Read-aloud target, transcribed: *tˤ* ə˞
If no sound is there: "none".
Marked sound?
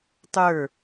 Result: tˤ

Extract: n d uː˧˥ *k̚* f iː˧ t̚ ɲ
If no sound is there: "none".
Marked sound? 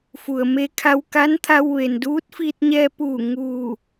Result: t̚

